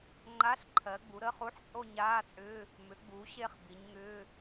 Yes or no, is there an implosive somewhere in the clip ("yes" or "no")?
no